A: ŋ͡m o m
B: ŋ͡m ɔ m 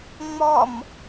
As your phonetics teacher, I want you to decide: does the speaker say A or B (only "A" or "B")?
B